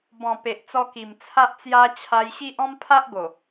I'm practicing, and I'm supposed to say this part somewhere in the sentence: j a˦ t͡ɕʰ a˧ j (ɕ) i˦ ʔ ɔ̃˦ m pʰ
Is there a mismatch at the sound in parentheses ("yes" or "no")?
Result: no